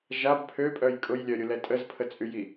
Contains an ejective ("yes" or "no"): yes